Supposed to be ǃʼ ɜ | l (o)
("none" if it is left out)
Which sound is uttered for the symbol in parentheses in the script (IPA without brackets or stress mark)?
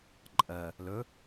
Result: ɵ